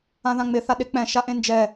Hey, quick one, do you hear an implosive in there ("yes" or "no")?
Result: yes